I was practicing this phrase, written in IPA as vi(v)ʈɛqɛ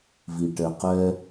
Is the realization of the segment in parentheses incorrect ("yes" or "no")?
yes